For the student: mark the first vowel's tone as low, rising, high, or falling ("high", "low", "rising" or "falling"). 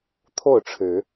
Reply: falling